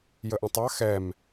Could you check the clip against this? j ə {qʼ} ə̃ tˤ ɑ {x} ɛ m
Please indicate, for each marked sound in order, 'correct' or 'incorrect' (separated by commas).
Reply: incorrect, correct